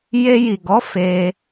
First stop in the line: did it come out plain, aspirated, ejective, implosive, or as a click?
plain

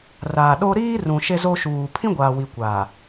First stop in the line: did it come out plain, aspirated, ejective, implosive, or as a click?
implosive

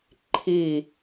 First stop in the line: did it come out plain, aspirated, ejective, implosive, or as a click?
click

